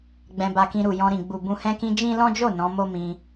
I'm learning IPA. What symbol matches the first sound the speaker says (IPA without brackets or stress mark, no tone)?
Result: ɡ͡b